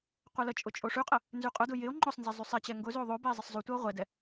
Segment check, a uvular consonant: present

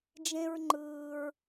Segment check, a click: present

